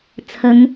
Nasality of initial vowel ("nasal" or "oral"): oral